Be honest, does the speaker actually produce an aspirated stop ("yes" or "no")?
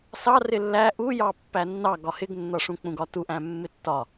no